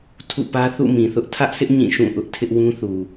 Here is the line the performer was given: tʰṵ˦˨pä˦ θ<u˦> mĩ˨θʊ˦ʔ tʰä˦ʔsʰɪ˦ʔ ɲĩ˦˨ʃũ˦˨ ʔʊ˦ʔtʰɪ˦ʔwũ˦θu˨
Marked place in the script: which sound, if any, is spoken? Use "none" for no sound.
ṵ˦˨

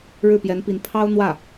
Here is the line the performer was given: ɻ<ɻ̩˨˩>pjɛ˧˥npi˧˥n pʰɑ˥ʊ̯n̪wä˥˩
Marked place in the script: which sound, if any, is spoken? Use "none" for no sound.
ɻ̩˥˩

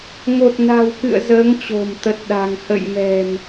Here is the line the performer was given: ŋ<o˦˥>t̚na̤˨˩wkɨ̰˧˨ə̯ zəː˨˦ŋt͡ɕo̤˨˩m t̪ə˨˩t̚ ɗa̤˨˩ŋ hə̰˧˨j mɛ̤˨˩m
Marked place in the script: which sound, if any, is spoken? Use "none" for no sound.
o˨˩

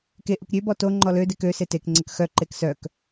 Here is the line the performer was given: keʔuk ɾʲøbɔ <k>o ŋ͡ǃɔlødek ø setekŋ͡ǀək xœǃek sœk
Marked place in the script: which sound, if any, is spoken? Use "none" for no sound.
t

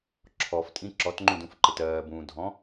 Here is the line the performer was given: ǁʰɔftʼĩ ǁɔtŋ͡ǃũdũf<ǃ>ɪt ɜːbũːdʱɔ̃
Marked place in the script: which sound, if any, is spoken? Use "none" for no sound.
ǃ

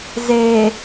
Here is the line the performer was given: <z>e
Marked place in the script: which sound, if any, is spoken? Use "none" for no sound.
z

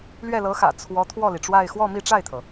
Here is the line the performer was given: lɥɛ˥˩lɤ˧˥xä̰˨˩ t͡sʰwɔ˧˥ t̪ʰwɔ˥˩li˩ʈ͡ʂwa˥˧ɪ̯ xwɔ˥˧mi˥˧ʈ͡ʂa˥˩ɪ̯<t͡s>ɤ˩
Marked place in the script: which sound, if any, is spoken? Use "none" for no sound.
t̪ʰ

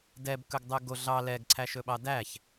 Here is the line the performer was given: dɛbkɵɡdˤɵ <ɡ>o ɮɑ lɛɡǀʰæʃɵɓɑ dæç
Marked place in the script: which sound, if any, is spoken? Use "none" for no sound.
ɡ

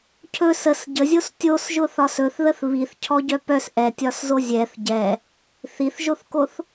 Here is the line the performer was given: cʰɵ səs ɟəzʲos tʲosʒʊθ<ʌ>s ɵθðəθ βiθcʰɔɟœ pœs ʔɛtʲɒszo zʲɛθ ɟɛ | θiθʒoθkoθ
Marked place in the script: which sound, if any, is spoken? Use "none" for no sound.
ɒ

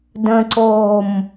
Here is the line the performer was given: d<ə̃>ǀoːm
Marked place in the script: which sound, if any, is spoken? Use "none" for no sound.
ə̃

